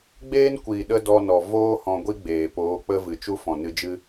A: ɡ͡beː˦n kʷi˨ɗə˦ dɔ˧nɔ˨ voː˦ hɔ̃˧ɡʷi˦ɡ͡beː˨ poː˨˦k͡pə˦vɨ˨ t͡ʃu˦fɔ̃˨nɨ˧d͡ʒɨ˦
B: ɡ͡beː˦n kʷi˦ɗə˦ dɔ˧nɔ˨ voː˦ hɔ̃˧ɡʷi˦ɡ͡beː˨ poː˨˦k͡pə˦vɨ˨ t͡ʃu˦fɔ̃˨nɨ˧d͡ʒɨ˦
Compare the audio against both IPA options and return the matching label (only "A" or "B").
A